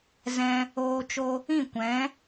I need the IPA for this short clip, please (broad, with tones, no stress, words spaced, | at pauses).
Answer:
zɛ̃˧ | oː˧t͡ʃo˧ | ĩ˦˨kʷɛ̃˨˦